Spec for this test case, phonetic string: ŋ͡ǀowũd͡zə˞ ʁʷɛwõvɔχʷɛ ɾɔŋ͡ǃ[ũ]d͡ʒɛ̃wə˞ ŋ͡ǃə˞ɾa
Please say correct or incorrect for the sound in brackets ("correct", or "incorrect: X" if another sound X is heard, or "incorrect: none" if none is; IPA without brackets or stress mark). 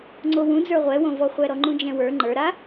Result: correct